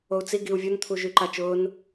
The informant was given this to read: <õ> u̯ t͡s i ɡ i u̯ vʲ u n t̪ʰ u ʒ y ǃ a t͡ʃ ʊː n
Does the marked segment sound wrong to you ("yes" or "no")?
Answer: yes